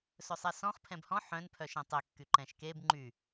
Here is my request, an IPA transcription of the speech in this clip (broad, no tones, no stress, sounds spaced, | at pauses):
s ɵ sˤ ɛ s ɔ̃ χ pʰ ɛ̃ b h ɔ̃ ħ œ̃ n pʰ œ ʃ ɛ̃ tˤ e kː y ǃ ɛ̃ ʃ k e b ŋ͡ǃ y